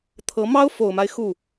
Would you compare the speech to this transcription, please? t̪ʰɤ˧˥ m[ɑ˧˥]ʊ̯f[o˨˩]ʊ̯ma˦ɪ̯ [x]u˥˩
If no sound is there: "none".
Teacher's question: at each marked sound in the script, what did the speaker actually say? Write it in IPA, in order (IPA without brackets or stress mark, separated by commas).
ɑ˥, o˨˩, x